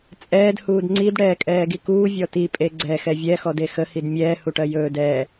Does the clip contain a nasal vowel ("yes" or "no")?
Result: no